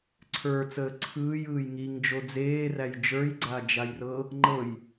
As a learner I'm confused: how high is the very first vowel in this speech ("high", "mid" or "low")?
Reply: mid